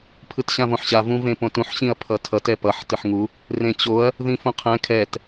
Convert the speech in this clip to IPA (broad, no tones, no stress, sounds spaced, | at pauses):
pʰ ɯ t ɕ ã v õ ħ ɕ a v ũ v ẽ p õ t ũ ħ ɕ ĩ ɐ̯ pʰ ʌ tʰ ʌ t ɛ p ʌ ħ t ɯ ħ ŋ u | r ẽ t͡ɕ o ɐ̯ | ð ĩ f õ qʰ ɛ̃ kʰ ɛ t